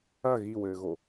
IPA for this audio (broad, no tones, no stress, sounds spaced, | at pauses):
ɐ ɣ i w ɘː ɣ o